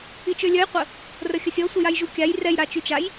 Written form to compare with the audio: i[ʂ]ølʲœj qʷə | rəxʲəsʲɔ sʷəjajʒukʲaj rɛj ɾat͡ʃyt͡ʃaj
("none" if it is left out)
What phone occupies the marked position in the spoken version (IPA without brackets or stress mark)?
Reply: t͡ʃ